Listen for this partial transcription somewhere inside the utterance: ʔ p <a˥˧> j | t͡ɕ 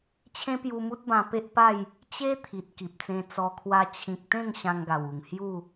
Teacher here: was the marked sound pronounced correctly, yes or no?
yes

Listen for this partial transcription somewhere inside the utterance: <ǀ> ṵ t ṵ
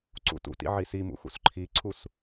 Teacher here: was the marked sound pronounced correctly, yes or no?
yes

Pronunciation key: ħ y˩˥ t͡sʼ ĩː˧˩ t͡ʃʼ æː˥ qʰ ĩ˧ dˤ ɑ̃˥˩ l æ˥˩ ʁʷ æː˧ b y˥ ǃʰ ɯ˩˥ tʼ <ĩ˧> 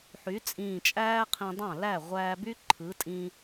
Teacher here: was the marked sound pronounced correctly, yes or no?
yes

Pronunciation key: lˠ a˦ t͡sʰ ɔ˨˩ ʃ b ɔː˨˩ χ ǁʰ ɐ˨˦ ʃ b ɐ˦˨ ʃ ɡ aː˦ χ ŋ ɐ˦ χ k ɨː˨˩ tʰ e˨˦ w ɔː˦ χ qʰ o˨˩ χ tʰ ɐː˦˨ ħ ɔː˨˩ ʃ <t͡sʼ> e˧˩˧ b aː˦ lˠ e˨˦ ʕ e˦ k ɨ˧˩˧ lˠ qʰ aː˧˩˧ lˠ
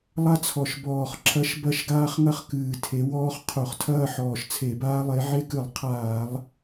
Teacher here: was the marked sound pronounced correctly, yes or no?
no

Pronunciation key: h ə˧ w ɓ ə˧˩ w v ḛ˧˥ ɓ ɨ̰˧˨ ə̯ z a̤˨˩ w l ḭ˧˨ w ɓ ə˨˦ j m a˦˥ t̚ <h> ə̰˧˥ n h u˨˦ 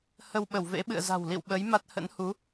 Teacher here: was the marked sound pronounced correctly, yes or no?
yes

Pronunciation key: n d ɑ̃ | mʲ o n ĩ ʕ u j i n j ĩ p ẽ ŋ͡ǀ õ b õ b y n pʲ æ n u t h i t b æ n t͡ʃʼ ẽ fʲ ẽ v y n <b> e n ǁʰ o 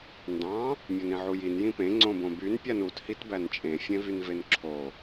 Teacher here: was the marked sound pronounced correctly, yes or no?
no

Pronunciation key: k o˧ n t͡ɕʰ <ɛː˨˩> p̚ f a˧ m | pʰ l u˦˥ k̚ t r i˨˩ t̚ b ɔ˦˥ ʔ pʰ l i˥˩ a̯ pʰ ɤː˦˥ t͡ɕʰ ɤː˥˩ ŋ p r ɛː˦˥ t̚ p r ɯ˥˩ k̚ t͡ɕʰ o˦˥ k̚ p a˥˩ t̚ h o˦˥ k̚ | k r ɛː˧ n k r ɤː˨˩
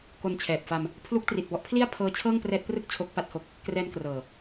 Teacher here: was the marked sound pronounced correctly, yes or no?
yes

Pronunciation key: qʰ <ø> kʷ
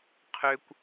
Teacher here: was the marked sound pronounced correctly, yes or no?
yes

